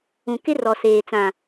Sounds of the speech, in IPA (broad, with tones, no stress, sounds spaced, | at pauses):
ũ˨ k ɪ˦ r ɔ˨ s eː˨ t͡s ã˨